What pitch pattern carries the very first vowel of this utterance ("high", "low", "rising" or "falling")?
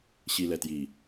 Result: low